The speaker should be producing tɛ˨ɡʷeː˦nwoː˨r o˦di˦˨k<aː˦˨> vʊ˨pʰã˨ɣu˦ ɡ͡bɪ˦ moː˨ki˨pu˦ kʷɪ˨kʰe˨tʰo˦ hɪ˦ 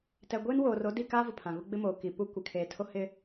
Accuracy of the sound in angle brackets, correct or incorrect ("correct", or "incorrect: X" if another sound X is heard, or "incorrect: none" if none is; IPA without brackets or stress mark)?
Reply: incorrect: aː˦